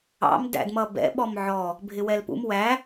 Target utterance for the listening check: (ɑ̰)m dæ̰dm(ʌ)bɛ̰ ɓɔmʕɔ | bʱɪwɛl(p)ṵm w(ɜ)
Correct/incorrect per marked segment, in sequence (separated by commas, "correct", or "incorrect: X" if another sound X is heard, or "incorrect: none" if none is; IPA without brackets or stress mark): correct, correct, correct, incorrect: æ